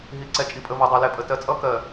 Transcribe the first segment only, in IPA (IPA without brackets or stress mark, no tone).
ɦ